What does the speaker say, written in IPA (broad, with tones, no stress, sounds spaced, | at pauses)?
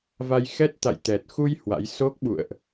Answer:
v a˧ j x ɛ˦˥ t̚ t̪ a̰˧˨ j t̪ ɛ˨˩ t̚ x u˧ j h w a̰˧˥ j s o˦˥ k̚ ɓ ṵ˧˨ ə̯ ʔ